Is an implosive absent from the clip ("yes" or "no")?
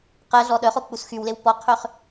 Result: no